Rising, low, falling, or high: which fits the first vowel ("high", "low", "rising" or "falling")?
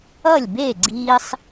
falling